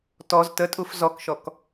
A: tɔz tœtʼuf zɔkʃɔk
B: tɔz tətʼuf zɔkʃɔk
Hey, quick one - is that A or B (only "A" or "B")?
B